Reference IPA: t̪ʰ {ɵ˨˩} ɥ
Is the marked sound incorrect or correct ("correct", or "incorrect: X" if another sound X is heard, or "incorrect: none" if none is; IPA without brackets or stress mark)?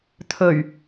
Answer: correct